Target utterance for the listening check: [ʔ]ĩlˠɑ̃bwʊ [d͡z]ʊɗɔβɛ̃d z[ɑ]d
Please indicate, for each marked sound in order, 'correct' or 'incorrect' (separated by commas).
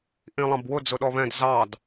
correct, correct, correct